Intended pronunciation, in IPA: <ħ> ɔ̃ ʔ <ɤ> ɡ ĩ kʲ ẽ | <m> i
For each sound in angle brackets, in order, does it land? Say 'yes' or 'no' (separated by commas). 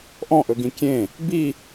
no, no, no